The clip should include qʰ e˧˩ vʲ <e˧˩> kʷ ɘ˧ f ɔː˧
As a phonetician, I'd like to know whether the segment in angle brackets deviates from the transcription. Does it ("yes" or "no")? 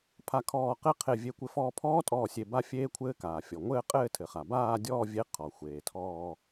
no